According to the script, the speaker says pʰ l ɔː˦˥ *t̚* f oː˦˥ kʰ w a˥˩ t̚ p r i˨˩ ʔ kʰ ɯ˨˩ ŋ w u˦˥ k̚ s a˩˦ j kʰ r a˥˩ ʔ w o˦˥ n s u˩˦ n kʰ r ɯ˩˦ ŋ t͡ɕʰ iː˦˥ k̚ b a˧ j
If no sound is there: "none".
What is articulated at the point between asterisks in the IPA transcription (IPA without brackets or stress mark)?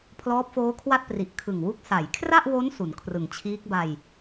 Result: p̚